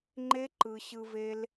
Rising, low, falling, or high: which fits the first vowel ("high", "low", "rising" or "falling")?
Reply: high